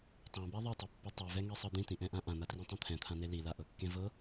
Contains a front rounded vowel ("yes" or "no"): no